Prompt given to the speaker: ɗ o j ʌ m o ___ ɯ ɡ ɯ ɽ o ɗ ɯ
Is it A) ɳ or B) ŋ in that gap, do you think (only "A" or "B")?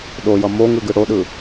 B